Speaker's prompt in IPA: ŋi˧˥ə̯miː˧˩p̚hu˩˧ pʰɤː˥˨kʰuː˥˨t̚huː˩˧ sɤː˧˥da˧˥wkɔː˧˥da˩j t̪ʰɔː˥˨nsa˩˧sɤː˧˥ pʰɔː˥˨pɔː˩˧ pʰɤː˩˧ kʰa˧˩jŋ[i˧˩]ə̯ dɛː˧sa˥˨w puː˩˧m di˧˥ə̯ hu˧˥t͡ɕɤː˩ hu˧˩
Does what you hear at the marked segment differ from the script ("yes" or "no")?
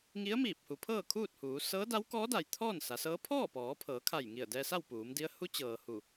no